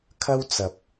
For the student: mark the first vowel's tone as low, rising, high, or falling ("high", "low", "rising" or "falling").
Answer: high